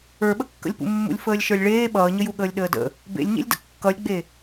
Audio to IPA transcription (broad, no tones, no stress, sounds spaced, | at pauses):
ə˞ ɓ ə kː ə̰ lʲ p ṵ mː ṵ lʲ f əː lʲ ʃ ə˞ lʲ ɭ eː ɓ ʌː ɲ ə j u ɠ əː lʲ ɗ əː d ə̰ | b ḛ lʲ ɲ ḛ lʲ d ə̰ kː ʌ lʲ ɡ͡b e